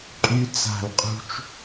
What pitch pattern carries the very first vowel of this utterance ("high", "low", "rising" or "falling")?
high